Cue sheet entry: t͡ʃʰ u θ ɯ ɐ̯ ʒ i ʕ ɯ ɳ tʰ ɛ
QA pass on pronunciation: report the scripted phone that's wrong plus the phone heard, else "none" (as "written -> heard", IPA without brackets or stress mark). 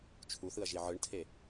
ɛ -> e